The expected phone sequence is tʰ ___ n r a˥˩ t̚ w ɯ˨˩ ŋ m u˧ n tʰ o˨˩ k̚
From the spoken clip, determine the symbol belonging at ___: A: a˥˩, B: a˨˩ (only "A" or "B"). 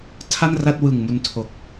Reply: A